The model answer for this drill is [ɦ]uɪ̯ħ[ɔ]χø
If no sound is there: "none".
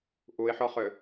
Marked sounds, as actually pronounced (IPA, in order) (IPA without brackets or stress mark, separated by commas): ʔ, ɔ